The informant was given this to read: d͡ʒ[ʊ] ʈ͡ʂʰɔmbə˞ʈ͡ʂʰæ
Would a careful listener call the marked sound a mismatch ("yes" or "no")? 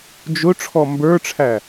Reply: no